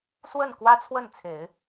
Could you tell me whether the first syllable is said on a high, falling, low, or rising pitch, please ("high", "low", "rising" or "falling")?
falling